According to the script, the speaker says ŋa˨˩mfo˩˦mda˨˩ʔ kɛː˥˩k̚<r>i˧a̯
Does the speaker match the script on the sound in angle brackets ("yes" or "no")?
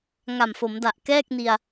no